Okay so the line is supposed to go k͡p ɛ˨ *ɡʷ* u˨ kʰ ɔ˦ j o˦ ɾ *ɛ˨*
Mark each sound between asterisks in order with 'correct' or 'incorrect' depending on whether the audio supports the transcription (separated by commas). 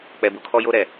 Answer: incorrect, correct